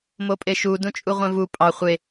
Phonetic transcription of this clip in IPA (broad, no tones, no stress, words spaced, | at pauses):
mopʼeʃu dũt͡ʃʼuʁʷẽvu pʼɑ χʷe